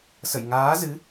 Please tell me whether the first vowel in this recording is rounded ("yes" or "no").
no